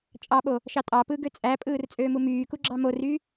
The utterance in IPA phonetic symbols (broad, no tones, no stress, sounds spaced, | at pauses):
t͡ʃʼ ɑ ɓ o | ʃ ɑ tʼ ɑ p ɯː ɡ ø t͡sʼ æ pʼ ɯː r t͡sʼ øː m u m yː k u ɡ͡ǁ ɑ m o r y